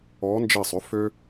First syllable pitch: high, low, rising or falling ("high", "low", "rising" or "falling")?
rising